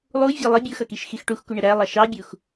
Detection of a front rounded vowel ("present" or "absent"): absent